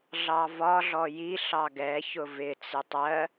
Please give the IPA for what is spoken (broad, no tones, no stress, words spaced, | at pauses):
ɮɑvɒɮɔ jiɬɑ ɡɛçʊ vɪt͡sɪ tˤɜ